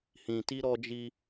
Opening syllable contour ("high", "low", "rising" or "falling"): low